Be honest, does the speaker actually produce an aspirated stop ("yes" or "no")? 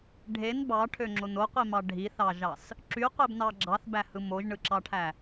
yes